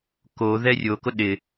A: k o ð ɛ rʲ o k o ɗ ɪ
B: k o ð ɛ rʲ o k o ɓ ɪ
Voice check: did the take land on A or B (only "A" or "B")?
A